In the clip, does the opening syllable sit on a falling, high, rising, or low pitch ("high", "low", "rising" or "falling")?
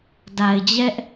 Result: low